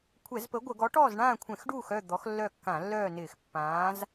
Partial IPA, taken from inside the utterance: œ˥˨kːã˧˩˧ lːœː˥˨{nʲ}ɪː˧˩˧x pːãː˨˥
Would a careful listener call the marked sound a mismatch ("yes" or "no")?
yes